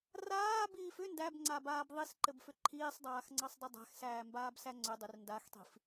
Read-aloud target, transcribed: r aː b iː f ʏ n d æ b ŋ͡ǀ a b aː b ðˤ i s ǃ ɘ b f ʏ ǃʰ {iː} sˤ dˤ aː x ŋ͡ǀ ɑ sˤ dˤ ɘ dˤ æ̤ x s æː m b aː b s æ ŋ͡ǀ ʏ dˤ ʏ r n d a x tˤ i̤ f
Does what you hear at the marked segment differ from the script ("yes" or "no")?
no